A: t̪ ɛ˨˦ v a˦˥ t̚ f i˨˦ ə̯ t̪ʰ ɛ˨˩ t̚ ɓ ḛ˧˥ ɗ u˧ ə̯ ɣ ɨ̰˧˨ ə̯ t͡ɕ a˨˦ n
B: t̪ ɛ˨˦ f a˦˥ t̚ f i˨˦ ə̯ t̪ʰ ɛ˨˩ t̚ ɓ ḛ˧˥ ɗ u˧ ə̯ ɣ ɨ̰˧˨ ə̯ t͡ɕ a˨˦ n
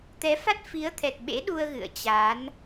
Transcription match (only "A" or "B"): B